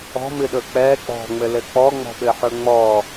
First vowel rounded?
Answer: yes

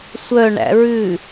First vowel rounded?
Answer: yes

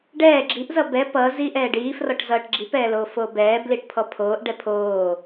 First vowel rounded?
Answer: no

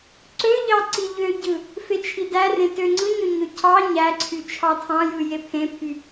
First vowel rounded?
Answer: yes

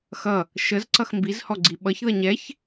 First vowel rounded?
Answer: no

